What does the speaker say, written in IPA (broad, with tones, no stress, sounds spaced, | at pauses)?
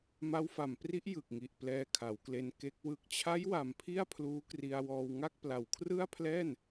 m a˦˥ w f a˨˩ m p r i˦˥ ʔ j ɯ˨˩ k̚ ŋ i˨˩ ʔ p l ɛː˧ kʰ a˩˦ w k l e˧ n k e˦˥ k̚ w ɯ˨˩ k̚ t͡ɕʰ a˦˥ j w a˨˩ m pʰ i˥˩ a̯ pʰ l uː˦˥ k r i˧ a̯ w ɔː˧ w ŋ a˥˩ k̚ p l a˨˩ w kʰ r ɯ˥˩ a̯ pʰ l ɛː˥˩ n